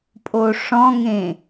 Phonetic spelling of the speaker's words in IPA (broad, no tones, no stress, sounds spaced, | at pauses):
pʼ o ʂ ɔ̃ ŋ ẽ